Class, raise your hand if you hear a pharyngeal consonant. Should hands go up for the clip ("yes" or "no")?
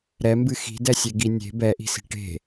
no